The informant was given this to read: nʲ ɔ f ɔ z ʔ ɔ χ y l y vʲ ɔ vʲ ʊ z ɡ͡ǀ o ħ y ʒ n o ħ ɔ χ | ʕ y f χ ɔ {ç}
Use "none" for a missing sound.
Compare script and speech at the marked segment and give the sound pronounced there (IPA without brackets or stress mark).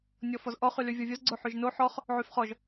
ʒ